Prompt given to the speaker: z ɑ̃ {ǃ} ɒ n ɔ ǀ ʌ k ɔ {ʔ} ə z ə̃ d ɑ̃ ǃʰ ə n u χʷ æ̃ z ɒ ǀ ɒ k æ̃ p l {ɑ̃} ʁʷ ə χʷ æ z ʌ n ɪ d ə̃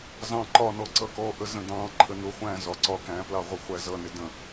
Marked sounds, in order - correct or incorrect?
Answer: correct, correct, incorrect: ɑ

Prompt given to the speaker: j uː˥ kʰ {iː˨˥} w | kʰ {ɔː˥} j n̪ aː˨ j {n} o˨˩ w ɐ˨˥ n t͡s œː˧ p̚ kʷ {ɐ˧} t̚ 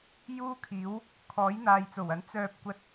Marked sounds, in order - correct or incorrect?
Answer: correct, incorrect: ɔː˨˥, incorrect: t͡s, correct

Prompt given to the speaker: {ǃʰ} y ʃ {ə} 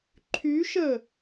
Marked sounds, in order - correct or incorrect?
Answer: correct, correct

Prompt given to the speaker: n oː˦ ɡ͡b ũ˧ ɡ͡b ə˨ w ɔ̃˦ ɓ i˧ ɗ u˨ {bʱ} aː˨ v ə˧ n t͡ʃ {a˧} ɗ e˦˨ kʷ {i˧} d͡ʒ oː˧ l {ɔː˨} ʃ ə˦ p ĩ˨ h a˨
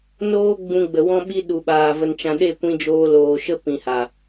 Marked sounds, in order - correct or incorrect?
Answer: incorrect: ɓ, incorrect: ã˧, incorrect: ĩ˧, incorrect: oː˨

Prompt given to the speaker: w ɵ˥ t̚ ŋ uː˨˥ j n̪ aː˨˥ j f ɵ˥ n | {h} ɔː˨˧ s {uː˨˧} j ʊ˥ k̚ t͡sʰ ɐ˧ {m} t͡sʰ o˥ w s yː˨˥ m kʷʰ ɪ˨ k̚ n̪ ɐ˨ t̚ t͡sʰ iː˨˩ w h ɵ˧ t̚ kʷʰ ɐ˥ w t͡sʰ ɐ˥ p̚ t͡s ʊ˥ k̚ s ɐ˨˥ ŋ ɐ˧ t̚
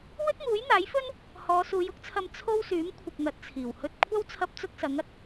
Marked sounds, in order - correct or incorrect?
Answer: correct, correct, correct

